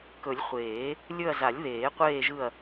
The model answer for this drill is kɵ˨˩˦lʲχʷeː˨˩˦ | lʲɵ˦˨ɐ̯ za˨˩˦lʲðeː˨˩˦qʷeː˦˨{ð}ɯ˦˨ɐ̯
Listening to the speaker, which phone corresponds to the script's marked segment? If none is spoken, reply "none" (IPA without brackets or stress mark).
ʒ